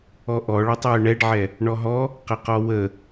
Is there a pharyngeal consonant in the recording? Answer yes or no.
yes